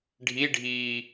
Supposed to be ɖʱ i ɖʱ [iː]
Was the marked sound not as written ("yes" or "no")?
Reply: no